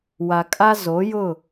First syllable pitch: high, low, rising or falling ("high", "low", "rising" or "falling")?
low